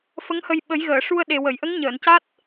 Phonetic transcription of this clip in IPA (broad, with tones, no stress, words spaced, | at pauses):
fə˧˥ŋhə˧j ɓə˨˩˦jɣəː˨˩˨ʂu˧ə̯ɗe˨˩ wə˨˩˨jʔə˧˥ŋ ɲəː˨˩˨nca˦˥t̚